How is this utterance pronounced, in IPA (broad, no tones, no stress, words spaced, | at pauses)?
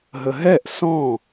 ɦəɦɛʔ sɔ̃